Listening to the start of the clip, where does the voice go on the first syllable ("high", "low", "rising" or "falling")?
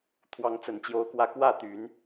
rising